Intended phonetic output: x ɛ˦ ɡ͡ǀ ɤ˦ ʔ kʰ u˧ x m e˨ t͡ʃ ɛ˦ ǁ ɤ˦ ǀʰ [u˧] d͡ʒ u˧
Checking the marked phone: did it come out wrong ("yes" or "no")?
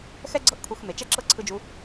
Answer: yes